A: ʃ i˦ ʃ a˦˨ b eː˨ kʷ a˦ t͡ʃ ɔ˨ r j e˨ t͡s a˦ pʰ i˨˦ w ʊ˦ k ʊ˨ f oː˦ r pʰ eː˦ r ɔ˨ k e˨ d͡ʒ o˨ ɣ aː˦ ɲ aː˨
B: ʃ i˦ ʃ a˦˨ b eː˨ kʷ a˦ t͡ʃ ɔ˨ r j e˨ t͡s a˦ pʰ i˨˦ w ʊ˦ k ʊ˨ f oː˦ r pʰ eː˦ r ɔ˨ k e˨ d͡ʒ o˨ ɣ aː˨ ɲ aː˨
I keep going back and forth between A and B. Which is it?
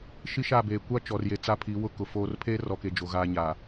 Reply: A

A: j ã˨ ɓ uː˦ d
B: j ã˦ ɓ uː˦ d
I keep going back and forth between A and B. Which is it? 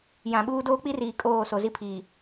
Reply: A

